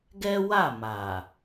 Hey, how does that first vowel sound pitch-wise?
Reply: high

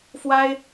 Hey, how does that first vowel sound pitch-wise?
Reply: high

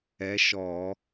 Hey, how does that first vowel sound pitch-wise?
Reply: rising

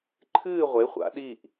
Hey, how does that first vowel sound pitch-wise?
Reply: falling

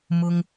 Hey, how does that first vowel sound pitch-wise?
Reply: high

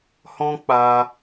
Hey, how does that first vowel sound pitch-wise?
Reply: high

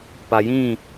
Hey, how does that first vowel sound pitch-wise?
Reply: low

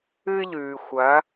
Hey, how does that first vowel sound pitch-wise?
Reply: high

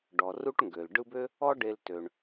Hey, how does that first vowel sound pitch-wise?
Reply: low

